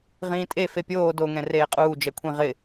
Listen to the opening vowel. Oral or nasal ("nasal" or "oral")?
nasal